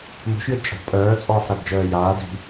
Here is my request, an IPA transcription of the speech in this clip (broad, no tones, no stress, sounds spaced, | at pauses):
m o̤ ʃ j ɯ d t͡ʃʼ ɔ̤ pʼ œː t͡sʼ ɔː ħ ɾ a d d͡ʒ œː j aː d i̤